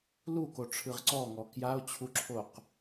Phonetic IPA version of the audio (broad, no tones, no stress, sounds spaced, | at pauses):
l u k o ʈ͡ʂʰ ɯ ʁ ǀ ɔ ŋ ɔ k j a o̯ t͡ɕʰ u ǁʰ o q